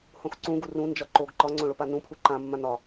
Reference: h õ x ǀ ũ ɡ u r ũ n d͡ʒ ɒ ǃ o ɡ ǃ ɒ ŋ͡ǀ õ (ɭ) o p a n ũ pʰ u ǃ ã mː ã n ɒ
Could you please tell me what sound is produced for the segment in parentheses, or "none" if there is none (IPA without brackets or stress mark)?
ɭ